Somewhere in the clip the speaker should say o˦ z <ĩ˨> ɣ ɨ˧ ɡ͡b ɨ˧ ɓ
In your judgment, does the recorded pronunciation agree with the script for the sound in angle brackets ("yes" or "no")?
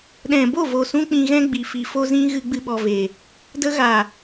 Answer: no